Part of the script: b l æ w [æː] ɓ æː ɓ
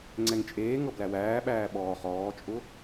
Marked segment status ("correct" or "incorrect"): correct